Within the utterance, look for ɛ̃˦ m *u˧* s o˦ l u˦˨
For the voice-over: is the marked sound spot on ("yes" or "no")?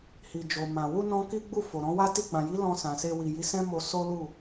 no